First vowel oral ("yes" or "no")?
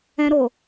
no